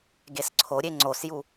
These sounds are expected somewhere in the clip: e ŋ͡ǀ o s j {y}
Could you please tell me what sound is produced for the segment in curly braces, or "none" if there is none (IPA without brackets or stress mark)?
u